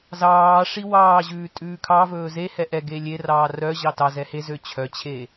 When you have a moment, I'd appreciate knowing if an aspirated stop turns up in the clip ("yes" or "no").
yes